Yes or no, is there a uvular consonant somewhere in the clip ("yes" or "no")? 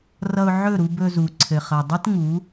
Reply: yes